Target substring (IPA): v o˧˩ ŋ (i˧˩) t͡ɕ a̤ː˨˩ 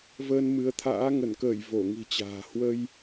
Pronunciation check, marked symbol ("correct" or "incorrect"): incorrect